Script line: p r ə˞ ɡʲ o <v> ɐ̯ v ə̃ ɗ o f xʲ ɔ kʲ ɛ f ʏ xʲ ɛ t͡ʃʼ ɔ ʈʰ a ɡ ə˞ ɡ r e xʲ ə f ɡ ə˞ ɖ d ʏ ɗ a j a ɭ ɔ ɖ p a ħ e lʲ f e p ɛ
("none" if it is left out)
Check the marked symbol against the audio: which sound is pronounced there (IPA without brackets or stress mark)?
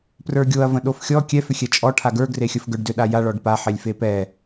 none